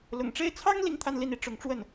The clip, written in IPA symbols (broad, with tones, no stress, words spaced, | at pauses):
lʊ̰˨˩ŋʈ͡ʂe˥˩ɪ̯ t͡sʰɑ˥ŋ li˥ŋt̪ʰa˥˧nli˥˩ni˧˥ ʈ͡ʂʊ˧˥ŋʈ͡ʂwə˥˩n